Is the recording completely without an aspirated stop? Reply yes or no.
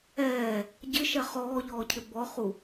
no